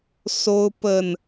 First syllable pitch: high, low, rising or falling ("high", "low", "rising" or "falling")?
high